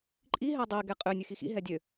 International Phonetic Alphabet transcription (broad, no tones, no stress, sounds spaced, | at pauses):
ǃʼ i ɦ ɛ dˤ i ɡ ɛ qʼ ø nʲ ʉ x i x ḭ ɦ ɛ dʲ ø